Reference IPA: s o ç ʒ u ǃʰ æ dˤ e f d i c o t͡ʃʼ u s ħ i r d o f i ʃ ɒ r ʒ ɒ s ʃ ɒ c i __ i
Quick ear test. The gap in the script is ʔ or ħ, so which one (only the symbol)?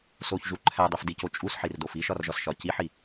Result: ħ